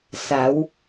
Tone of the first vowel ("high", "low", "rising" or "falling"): rising